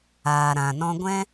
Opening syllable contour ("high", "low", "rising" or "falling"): low